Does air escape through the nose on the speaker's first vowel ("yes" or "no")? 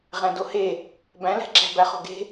yes